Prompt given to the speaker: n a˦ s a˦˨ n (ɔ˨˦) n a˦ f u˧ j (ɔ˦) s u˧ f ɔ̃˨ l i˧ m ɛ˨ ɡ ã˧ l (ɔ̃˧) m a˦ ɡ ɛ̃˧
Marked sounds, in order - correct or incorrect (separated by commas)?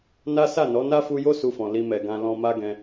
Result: correct, incorrect, correct